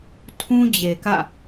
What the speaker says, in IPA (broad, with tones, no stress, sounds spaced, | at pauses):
tʰ ũ˦ d͡ʑ e˨ k ä̰˦˨